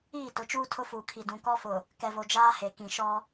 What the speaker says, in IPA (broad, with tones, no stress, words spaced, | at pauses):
iː˦˨tʊ˨˦t͡ʃuː˦ tʰʊ˦fuː˨kʰi˨ dũ˨kɔ˦fʊ˨ | kɛ˨vo˨d͡ʒaː˦ he˨kĩ˨ʃɔ˦